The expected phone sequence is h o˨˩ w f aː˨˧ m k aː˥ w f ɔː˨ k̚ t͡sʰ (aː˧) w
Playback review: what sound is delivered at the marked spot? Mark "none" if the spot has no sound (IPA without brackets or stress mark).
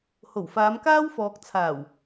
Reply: aː˨˩